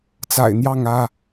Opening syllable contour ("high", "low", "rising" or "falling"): low